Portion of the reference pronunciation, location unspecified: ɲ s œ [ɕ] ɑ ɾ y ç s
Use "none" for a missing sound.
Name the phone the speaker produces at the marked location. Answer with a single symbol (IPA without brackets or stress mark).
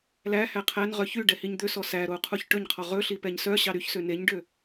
ɕ